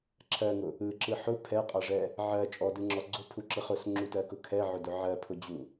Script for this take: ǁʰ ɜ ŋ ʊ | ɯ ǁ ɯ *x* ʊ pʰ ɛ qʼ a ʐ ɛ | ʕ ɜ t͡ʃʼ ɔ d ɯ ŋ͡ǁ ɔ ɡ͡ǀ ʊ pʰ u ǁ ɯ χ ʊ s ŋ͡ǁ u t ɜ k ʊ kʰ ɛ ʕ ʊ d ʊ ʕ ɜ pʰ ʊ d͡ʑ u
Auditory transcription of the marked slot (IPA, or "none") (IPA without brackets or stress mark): ħ